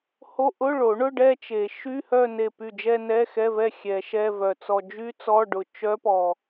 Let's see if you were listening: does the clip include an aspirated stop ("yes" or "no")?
no